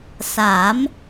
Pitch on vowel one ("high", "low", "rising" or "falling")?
rising